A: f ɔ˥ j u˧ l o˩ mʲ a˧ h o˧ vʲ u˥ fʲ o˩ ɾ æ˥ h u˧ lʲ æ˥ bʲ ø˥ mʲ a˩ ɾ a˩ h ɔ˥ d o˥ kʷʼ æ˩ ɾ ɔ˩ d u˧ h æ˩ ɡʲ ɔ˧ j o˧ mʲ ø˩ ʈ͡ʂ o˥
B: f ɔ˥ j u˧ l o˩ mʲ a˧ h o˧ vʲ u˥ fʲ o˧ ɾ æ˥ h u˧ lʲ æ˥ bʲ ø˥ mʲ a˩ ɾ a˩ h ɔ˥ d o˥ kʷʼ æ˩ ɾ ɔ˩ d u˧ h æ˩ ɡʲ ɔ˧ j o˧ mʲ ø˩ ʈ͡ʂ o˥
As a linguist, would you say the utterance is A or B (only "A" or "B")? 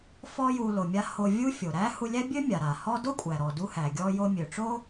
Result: A